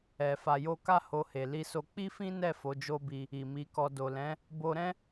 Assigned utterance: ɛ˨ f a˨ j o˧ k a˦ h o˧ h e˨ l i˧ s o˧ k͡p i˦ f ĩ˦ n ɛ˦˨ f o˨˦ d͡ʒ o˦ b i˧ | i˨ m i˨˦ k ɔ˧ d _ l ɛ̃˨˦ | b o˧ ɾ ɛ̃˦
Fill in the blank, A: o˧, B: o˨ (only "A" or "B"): B